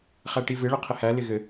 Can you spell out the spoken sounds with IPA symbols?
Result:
χ æ ʈ i v ɪ ɭ ɘ qʰ ɪ h æ l ɪ ɣ ɘ

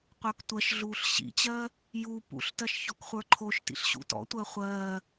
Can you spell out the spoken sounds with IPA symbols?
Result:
qʷ ə˞ k tʷ ɜ ʃ ɮ uː ɬ ɕ ḭ t͡ɕ ɜː | j u p ṵ ɬ t ɜ ʃ ç ɔ k χʷ ə˞ ǃʰ o ʃ t ḭ ɬ ɕ ṵ t ɔ̰ tʷ ɜ χʷ ɜː

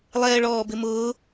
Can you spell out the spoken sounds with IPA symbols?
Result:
lˠ ɛː ɭ ɔː b ɪ m ʊː

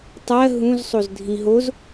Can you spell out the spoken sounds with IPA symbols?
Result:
tˤ ɜ ɦ ũ z sˤ o z dʱ ĩ ɦ o z

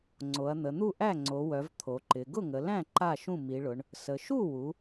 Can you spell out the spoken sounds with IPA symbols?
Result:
ŋ͡ǀ o˩˧ ɐ̯ n̪ ə˩˧ n̪ u˥˩ ʔ æ˥˩ ŋ͡ǀ o˩˧ w œ˩˧ v t̪ʰ o˩˧ ǃ ɪ˩˧ ɡ ʊ˥˩ ŋ ə˩˧ l æ̃˥˩ ǃ a˥˩ ʃ ũ˥˩ m i˩˧ ɭ ʊ˩˧ ɳ | s ə˩˧ ʃ u˥˩ w u˩˧

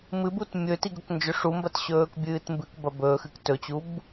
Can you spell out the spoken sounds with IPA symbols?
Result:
m ɨ b u t mʲ ɵ t i ɡ ɵ k n d͡ʒ ɵ ʂ u m b ɐ t ɕ ɵː k bʲ ɨː t m b ɨ k b ɐ b ɵ x ɨ k t ɵ t͡ɕ u b

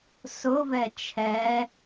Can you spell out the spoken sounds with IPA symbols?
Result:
s ʊ v ɛ t͡ʃʰ ɛ

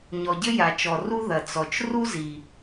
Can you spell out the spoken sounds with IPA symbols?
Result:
ɲ ɔ˩ ɟ ɘ˥ j a˩ t͡ʃ ɔ˩ r u˥ ð ɐ˩ t͡s ɔ˩ t͡ʃ r u˥ z i˩

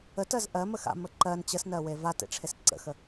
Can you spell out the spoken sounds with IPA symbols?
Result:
ə t ɜ z ʔ ɜ m ə x a̰ m ə ǃ ɜ n t͡ɕ ə s n ɜ w e v a t ḛ ʈ͡ʂʰ e s ǀ ə̰ x ə

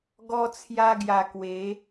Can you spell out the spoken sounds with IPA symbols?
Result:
ɡ ɔ˦ t͡sʰ j a˦ ɡ j a˧ k w e˨˦

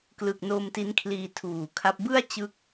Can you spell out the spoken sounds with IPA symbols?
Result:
k l ɯ˨˩ k̚ n o˧ m t i˦˥ n kʰ l iː˧ tʰ uː˨˩ kʰ a˦˥ p̚ b ɯ˥˩ a̯ t͡ɕ ɯ˦˥ k̚

